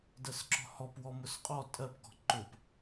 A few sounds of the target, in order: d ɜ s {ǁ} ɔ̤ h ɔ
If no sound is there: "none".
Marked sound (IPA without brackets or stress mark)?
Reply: ǁ